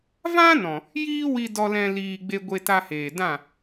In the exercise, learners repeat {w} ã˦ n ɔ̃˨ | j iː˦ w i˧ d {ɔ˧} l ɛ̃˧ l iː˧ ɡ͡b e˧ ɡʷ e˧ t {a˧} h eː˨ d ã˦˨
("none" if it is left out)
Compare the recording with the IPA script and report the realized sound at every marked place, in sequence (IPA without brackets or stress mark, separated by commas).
v, ɔ˧, a˧